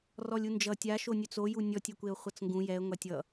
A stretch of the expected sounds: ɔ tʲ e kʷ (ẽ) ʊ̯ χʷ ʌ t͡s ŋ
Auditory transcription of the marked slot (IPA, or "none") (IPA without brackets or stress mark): e